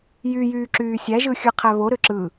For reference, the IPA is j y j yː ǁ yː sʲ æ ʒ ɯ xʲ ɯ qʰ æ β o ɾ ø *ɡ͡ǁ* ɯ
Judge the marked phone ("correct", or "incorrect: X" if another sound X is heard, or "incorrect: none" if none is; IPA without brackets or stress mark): incorrect: ǁ